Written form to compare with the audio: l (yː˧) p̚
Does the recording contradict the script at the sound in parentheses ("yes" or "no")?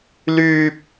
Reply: no